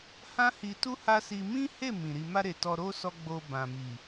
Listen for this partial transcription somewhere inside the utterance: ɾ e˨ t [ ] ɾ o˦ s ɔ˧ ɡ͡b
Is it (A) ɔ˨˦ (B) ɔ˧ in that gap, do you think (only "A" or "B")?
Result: B